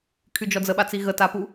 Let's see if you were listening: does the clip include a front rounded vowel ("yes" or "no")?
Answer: yes